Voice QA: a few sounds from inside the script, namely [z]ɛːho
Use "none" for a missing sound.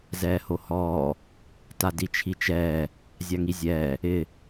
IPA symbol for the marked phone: z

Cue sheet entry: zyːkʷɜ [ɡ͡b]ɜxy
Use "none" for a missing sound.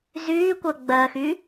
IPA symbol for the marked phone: ɡ͡b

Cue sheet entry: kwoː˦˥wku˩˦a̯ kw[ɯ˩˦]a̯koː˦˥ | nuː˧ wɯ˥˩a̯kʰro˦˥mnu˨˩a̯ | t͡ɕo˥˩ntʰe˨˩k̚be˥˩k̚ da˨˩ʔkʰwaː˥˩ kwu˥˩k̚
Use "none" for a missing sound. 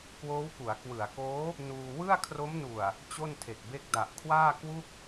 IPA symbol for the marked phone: ɯ˩˦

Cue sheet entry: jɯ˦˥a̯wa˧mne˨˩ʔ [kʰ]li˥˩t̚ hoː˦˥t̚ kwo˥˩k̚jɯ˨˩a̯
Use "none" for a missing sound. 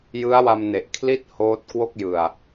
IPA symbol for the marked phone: kʰ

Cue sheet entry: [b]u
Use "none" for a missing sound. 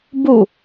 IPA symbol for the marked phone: b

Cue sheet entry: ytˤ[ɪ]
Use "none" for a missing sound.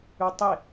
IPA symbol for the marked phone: ɪ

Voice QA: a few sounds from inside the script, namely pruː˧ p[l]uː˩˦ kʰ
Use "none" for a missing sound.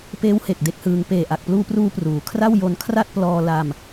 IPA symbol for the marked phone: r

